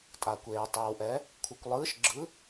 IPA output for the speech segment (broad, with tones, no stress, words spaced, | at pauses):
tʼa˨kʷeː˨tˤɛ˨wʔɛ˨˥ | kʷʰɯ˨kʷlˠɯː˨˥ʃɡ͡ǁɯ˨˥